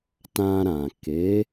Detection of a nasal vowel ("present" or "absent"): present